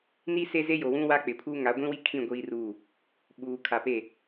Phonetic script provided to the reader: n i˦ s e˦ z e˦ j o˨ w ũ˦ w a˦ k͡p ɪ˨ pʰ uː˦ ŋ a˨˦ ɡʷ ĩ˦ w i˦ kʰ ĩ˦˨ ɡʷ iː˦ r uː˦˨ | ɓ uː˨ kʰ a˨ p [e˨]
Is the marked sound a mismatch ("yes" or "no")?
yes